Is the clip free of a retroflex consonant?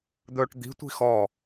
no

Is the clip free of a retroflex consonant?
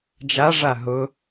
no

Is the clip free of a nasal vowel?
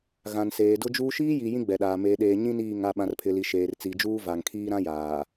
no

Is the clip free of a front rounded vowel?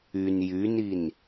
no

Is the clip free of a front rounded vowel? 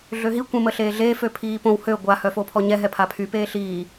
no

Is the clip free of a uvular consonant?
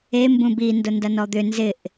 yes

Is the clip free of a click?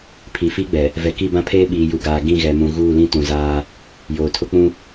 yes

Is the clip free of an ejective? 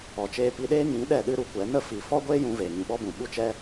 yes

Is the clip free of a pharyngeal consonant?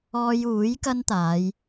yes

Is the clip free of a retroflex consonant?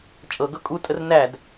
yes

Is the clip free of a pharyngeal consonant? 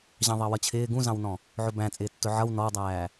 no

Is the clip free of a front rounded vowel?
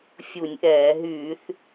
no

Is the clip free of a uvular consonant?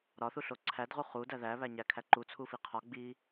no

